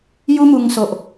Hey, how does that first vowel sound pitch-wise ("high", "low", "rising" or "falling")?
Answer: high